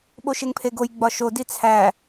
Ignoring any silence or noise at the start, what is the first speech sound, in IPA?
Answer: ɓ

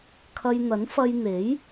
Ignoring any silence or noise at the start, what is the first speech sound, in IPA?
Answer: kʰ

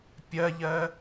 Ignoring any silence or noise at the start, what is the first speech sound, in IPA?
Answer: pʲ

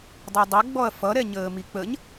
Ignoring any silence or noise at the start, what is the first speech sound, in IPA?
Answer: dˤ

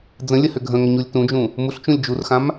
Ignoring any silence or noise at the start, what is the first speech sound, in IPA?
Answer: d͡z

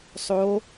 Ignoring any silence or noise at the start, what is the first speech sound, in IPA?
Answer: sˤ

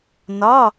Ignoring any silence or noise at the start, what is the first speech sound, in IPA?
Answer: n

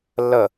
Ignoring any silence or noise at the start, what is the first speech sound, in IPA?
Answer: lː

